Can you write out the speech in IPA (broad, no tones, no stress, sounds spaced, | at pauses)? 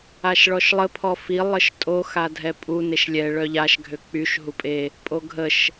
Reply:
a ʃ ɭ ɔ ʃ lˠ ə pʰ ɔ f i lˠ ə ʃ tʼ o x a dʱ ɛ pʼ u n e ʃ lʲ ɛ ɭ œ ʎ a ʃ ɡʱ ø k͡p y ʃ ɦ u pʼ e | pʼ o ɡʱ ə ʃ